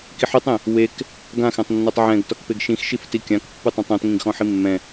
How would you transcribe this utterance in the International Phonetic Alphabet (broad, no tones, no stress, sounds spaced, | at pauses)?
k i ħ ø tˤ ẽ | w e k | ɡ ã x ɛ̃ tˤ nː ɔ tˤ ʕ ɛ̃ ɡ t ɔ k p e ɡ ʃ ĩ x ʃ i f t i kʲ ã k pː ɯ tˤ ɛ̃ tˤ ɔ̃ t ŋ ĩ ɡ x ɔ̃ ħ i mː ɛ̃